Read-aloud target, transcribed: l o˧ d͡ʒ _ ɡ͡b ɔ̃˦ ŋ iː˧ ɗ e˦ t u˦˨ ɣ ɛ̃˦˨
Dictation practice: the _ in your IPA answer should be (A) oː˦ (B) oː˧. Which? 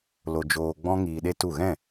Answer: B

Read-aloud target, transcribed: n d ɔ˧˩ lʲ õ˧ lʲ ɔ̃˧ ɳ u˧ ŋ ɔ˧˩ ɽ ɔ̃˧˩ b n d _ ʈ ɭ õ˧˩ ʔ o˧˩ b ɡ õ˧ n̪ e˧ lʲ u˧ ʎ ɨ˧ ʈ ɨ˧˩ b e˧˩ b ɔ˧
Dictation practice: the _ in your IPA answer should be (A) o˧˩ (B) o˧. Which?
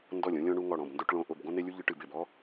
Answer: B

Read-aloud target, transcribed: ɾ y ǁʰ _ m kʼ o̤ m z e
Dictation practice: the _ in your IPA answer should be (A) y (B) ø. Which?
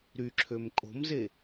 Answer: B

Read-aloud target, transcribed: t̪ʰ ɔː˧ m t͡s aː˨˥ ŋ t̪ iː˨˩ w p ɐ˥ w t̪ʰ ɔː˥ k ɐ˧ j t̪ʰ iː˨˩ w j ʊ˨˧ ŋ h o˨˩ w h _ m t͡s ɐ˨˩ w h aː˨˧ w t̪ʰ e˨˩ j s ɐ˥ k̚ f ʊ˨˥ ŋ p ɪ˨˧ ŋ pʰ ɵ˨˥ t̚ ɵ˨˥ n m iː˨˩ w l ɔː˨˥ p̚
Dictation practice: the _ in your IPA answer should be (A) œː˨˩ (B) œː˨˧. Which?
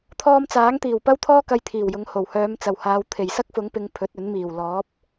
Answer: B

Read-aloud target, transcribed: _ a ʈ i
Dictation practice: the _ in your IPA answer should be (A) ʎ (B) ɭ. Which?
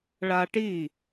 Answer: B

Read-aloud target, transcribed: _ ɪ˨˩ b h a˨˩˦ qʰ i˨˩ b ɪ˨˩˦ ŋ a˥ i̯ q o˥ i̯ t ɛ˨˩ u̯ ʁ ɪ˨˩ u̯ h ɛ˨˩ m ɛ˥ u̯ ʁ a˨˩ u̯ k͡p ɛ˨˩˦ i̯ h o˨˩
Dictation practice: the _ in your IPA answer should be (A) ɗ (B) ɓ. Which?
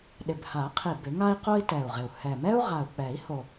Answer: A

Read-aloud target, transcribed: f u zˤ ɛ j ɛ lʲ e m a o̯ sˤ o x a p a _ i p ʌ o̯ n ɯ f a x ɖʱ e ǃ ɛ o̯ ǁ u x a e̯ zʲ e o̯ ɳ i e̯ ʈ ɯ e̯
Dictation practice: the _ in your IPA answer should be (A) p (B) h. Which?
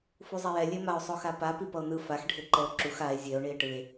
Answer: A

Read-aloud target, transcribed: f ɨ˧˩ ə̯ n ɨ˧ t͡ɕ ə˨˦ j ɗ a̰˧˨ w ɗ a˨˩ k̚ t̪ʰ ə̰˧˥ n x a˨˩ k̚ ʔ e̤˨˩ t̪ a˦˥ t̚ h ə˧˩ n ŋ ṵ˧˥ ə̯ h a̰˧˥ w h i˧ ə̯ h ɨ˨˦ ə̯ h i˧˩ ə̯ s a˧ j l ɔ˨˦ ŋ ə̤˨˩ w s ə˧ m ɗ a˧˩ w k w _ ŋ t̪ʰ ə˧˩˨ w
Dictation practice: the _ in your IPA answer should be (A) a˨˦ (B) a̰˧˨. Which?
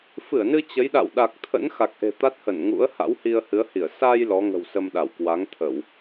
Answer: A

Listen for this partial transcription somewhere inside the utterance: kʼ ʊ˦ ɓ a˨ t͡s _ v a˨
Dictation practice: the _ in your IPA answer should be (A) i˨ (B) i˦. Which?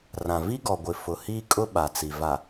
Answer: A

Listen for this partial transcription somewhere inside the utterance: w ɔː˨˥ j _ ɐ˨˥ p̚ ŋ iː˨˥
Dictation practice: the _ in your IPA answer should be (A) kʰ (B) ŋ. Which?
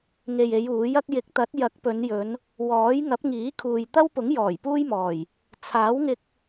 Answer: B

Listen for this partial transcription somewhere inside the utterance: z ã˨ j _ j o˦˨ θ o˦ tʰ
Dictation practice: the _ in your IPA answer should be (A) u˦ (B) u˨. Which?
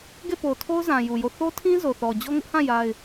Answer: B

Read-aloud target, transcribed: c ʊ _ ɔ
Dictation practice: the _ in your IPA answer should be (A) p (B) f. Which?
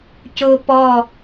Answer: A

